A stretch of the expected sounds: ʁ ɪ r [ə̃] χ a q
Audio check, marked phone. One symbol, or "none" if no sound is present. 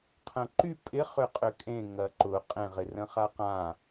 ə̃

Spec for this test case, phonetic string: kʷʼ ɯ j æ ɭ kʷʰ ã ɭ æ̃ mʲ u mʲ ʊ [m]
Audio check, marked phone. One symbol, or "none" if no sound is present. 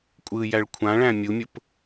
p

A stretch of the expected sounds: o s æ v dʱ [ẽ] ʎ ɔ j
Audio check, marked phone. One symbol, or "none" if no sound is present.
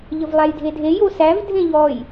ẽ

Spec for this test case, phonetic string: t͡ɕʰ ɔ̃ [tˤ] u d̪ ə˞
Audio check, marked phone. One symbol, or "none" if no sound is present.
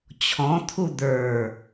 t̪ʰ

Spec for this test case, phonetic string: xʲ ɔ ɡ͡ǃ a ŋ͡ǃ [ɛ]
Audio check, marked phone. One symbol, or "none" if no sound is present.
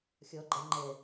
ɛ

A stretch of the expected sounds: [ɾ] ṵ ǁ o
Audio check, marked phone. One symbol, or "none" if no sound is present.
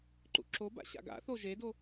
ǃ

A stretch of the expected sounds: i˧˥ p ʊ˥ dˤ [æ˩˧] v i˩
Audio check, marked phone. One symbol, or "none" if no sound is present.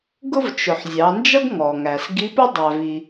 æ˩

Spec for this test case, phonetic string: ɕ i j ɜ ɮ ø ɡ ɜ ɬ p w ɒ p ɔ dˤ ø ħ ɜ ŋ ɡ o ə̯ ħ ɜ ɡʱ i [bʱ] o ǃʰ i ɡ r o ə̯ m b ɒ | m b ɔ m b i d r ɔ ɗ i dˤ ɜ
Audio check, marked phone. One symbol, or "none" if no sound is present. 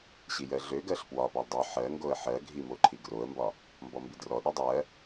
m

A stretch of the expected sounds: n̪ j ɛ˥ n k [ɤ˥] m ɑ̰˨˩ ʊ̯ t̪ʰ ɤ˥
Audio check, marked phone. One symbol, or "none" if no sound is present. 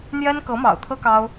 ɤ˧˥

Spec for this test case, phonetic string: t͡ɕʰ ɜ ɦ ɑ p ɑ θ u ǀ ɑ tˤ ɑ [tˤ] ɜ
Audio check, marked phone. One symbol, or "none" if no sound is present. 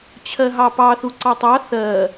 θ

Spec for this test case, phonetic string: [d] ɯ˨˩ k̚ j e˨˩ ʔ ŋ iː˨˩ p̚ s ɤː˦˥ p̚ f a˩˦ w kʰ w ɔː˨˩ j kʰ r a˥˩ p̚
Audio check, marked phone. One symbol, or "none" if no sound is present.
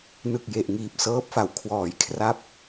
n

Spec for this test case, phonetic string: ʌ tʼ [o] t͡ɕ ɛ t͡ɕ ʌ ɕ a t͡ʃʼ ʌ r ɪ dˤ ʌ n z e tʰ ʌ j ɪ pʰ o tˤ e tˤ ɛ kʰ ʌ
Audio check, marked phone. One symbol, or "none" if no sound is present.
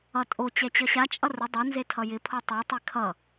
o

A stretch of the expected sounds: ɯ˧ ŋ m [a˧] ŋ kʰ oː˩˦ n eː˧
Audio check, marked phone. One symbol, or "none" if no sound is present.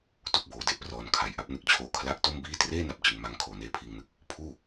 a˧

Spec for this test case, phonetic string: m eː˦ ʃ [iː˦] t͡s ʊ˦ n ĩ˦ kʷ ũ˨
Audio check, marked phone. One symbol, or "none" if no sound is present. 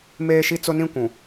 i˦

